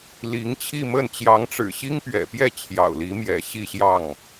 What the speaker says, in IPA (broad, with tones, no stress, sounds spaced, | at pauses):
l i˧˥ ŋ t͡ɕʰ i˥˧ m ə˥˩ n t͡ɕ j ɑ˧˥ ŋ ʈ͡ʂ ɻ̩˨˩ ɕ i˥ ŋ p ɥ ɛ̰˨˩ p j ɛ˥˩ t͡ɕʰ j ɑ̰˨˩ ʊ̯ l i˧˥ m j ɛ̰˨˩ ɕ i˥˧ ɕ j ɑ˥˩ ŋ